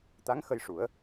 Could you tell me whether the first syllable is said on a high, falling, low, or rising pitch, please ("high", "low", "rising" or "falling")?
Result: rising